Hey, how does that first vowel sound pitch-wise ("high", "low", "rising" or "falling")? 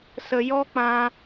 low